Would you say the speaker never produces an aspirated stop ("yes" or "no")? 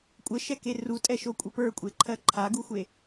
no